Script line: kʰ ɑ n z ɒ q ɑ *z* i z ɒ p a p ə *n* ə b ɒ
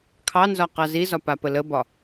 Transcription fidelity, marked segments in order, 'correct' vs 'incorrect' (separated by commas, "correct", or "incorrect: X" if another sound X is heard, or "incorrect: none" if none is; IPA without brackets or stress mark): correct, incorrect: l